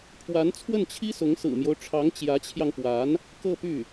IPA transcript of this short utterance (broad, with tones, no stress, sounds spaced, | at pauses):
pʰ w a˧˥ n t͡sʰ w ə˥˩ n t͡ɕʰ i˥ s ʊ˧˥ ŋ s ɹ̩˨˩ m j o˦ ʊ̯ ʈ͡ʂʰ ɑ˧˥ ŋ t͡ɕ j ä˧˥ t͡ɕʰ j ɑ˧ ŋ p w a˧˥ n | k ɤ˥˧ p y˥˩